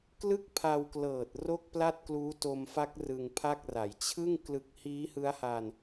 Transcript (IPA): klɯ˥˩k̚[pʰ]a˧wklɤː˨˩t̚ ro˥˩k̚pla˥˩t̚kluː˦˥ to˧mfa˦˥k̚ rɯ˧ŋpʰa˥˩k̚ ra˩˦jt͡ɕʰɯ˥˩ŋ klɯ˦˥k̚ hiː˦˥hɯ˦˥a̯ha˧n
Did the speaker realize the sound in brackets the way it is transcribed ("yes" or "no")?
yes